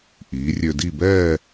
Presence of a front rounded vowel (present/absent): present